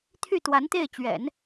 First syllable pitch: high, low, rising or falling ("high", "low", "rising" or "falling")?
falling